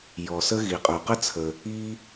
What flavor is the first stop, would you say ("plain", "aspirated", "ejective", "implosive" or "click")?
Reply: ejective